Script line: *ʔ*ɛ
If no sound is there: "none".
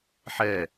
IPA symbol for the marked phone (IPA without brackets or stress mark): ħ